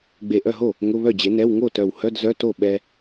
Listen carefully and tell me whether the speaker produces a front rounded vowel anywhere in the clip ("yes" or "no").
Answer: yes